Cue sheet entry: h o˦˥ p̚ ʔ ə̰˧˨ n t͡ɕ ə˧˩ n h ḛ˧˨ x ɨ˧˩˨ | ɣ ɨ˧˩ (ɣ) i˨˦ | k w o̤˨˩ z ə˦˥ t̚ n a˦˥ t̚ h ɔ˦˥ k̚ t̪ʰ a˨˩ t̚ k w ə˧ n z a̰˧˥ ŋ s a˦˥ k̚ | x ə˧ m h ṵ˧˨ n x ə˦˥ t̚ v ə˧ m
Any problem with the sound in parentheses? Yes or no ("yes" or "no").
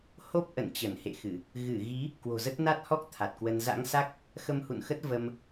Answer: no